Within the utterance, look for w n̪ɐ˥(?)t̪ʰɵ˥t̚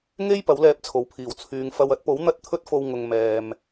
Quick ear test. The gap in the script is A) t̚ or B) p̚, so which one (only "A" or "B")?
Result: A